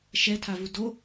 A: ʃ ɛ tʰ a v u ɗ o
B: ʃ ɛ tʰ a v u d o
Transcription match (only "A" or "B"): B